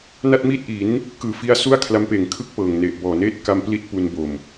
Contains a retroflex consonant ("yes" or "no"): no